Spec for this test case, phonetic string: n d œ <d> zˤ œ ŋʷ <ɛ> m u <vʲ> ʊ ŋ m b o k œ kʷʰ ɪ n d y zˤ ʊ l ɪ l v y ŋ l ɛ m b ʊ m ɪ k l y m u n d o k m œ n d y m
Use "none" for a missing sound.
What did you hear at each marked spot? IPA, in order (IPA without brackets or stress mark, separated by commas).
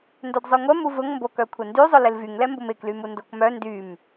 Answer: d, ɛ, v